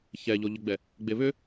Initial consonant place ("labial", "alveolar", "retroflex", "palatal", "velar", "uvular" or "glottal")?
palatal